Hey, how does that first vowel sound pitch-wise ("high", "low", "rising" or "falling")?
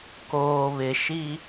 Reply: low